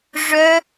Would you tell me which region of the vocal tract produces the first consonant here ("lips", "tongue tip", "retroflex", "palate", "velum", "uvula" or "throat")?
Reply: retroflex